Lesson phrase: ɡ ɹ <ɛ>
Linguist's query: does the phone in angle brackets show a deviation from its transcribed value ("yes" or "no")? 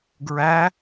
yes